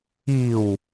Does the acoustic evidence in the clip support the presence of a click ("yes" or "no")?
no